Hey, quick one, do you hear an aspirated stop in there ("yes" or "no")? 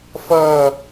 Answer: no